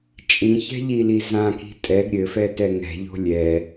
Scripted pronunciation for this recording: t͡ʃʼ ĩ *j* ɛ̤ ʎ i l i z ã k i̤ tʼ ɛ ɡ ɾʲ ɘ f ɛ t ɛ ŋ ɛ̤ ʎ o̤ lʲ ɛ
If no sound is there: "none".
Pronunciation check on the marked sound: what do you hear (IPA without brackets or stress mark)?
ç